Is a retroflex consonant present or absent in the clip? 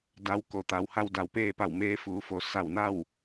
absent